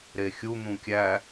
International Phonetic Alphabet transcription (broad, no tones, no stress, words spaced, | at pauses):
ɾexʲu n̪ũkʲæ